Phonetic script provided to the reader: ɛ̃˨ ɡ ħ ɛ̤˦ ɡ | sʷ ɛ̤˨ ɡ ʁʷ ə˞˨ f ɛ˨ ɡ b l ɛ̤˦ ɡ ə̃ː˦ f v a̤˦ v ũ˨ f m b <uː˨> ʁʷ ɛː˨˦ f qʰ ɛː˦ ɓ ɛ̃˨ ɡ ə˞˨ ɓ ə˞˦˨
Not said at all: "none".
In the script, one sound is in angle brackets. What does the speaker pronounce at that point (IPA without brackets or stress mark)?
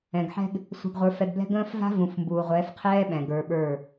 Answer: uː˨